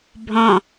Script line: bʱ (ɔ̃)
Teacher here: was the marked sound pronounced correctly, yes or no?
yes